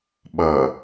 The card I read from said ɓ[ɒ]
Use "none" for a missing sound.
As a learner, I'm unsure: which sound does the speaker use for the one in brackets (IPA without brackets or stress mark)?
ʌ